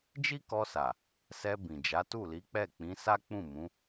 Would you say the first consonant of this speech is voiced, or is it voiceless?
voiced